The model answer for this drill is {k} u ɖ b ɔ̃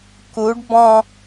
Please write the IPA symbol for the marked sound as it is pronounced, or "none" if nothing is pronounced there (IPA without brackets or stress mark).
k